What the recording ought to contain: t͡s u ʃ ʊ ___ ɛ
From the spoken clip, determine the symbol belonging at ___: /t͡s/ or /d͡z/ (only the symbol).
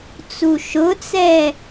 t͡s